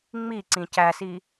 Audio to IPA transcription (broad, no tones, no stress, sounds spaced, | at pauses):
ŋ͡m i ǀ ĩ c æ s i